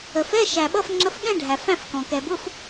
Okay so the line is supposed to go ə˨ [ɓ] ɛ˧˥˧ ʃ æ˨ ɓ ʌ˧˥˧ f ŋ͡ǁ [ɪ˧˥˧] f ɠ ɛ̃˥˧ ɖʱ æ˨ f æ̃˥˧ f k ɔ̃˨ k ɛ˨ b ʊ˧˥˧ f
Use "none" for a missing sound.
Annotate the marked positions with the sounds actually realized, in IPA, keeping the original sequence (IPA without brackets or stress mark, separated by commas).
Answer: f, ə˧˥˧